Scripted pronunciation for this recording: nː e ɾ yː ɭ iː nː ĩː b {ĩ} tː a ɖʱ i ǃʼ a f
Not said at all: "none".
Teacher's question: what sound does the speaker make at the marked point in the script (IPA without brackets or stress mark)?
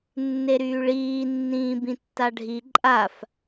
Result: ĩ